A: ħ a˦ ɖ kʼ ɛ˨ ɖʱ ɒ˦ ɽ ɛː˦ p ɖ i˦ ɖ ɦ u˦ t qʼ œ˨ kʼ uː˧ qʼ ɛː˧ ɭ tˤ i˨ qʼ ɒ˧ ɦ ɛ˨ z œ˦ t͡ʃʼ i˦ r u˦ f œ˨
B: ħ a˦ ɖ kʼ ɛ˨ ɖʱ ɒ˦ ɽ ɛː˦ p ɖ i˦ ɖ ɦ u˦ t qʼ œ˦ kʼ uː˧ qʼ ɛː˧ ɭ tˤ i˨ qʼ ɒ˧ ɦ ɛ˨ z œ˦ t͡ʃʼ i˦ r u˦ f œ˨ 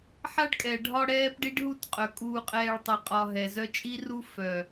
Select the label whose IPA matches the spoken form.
A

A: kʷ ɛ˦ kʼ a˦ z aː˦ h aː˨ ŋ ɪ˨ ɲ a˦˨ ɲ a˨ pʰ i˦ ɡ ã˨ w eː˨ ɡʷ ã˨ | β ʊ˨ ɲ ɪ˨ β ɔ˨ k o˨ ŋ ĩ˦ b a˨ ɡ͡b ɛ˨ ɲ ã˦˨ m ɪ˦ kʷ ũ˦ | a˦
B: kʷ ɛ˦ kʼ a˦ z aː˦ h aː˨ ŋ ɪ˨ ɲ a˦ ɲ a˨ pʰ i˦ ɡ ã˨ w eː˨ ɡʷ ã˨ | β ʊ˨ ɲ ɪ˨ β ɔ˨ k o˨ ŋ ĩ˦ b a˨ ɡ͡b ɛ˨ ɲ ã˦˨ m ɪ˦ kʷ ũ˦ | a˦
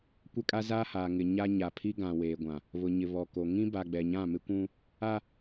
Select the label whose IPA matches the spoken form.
B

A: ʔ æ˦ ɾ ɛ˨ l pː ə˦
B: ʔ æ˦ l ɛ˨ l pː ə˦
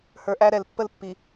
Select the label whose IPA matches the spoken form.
A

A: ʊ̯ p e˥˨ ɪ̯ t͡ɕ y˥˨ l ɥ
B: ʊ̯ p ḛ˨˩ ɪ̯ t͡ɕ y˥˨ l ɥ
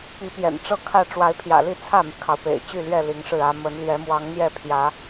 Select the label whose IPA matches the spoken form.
B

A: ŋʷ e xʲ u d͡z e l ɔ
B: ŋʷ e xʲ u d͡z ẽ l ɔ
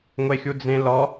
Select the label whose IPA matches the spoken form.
B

